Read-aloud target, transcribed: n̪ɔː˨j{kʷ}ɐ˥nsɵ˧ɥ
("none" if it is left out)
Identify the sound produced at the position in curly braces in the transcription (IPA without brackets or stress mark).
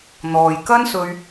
k